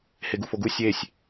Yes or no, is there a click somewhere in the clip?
no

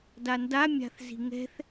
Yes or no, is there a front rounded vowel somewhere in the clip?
no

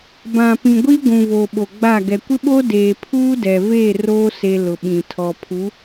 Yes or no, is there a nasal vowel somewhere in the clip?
yes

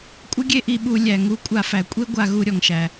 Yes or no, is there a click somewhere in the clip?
no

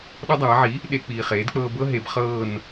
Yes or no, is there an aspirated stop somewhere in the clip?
no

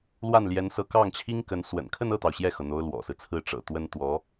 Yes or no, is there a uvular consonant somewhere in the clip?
no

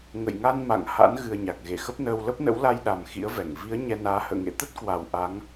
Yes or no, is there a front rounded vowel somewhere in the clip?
no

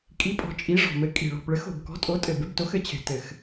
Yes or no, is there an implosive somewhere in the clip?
no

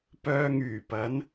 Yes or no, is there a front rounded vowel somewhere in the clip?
yes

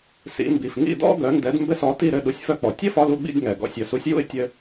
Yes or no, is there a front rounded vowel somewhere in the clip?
yes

